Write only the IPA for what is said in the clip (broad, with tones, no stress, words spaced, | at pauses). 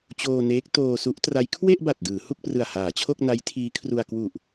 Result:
t͡ɕoː˧neː˦˥k̚ toː˧ su˦˥ʔtra˦˥j kʰwe˥˩ʔba˨˩t̚dɯː˩˦ hu˥˩k̚prɯ˨˩a̯haː˩˦ t͡ɕʰo˥˩k̚na˦˥jtʰiː˦˥ kʰru˧a̯ kwu˨˩ʔ